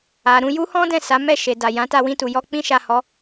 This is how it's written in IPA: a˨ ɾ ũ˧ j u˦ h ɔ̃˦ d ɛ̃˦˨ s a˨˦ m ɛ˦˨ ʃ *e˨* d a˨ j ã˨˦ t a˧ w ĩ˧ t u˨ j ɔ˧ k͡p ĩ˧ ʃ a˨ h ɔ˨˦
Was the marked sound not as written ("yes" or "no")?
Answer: no